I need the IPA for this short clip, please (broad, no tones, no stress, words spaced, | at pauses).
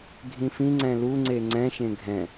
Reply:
ɡʱĩfĩŋ͡ǀɛ̃ luŋ͡ǀe ŋ͡ǀɛ̃ʃẽ ɡʱɛ̃